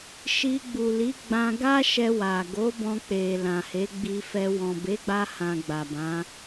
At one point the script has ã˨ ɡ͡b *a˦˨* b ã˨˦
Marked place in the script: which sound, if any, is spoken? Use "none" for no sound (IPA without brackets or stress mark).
a˨